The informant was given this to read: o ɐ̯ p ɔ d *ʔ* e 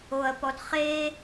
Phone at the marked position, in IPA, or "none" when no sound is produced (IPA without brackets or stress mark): χ